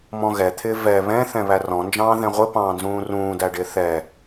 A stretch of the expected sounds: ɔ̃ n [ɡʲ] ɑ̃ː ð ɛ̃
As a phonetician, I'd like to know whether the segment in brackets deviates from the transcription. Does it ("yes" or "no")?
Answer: yes